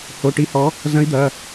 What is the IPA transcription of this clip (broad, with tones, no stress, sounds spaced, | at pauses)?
h o˩˧˩ ʈ i˨˥ h ɔ˨˥ | z ɐ̃˨˥ i̯ d̪ ɐ˩˧˩